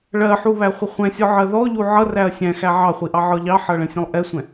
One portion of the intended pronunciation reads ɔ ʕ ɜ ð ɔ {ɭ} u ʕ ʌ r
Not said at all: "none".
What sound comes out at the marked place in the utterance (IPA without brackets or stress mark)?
ʎ